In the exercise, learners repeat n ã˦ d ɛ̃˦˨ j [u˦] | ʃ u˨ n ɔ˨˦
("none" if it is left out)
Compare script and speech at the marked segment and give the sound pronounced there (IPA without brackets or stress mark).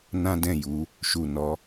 u˨˦